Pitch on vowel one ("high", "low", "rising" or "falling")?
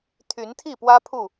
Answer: rising